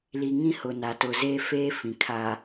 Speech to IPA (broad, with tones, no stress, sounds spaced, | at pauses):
l i˨ ŋ ĩ˦˨ h ʊ˨ n a˨ t ʊ˨ z eː˦ f eː˦ f ĩ˨ kʰ a˨